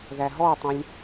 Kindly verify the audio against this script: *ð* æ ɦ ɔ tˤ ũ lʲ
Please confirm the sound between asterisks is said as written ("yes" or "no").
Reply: yes